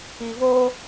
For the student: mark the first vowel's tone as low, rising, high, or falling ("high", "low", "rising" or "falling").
low